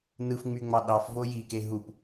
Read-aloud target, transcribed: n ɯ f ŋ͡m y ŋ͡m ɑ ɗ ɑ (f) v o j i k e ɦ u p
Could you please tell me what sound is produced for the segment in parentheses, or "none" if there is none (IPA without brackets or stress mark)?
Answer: f